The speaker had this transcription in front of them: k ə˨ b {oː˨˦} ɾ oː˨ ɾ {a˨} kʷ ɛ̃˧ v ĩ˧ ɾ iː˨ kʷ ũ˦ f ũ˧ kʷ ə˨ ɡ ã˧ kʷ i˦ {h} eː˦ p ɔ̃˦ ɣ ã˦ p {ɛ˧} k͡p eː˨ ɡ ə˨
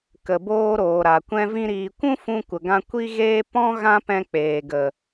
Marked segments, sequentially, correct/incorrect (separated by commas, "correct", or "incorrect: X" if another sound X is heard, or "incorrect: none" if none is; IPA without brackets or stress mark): incorrect: oː˧, correct, incorrect: ɣ, incorrect: ɛ̃˧